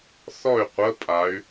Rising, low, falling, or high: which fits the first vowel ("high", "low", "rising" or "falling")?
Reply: falling